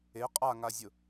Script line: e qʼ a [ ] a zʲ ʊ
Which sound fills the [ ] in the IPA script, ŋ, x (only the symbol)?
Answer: ŋ